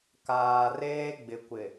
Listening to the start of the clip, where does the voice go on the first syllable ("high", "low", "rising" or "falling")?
low